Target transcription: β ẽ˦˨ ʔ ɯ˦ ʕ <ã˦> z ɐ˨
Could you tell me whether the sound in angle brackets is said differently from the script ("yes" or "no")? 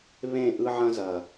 yes